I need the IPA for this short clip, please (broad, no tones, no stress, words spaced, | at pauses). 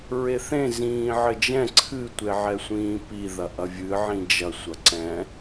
ɹeθẽ zĩːʕɘd͡ʒɛ̃ ǀʰɨ tʷeʕɛsʷĩːpi ðɐʔɐvʲɨ ʕĩd͡ʒɐ sʷɐǀɛ̃